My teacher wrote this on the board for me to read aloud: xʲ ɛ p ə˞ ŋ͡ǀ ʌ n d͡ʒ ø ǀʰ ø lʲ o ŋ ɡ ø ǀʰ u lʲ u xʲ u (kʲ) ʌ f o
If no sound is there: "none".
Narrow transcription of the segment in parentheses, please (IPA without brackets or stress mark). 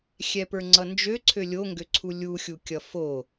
kʲ